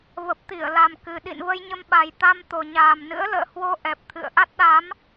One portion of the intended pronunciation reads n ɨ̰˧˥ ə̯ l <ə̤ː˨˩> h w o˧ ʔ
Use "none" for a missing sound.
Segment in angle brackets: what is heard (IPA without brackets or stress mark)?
ə̰ː˧˨